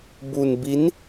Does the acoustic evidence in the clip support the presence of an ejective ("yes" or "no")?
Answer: no